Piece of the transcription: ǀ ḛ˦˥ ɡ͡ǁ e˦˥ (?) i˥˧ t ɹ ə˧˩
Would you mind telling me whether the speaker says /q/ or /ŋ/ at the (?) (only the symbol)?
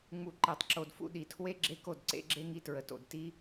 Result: ŋ